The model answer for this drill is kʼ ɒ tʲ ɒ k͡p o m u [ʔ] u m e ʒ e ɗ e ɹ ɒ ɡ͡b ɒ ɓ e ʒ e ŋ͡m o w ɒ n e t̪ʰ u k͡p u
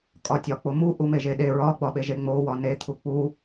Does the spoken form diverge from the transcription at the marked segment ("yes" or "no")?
no